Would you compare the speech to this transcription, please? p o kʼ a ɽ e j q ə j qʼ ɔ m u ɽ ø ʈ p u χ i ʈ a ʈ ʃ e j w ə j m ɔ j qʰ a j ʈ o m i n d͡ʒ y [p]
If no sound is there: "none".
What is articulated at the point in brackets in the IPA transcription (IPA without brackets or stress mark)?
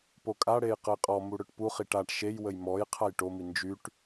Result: ʈ